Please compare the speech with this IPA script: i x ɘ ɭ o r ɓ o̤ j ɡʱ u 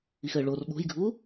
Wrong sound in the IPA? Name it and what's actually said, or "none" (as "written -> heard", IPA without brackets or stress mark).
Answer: none